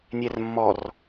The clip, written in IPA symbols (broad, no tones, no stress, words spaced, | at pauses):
nʲɛrmːɔr